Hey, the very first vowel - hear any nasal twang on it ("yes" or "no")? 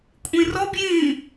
yes